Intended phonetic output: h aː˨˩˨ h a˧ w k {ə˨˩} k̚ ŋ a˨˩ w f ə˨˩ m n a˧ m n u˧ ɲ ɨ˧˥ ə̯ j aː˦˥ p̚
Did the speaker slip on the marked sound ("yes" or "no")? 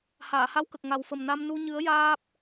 no